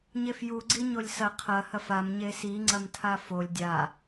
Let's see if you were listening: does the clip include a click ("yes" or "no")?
yes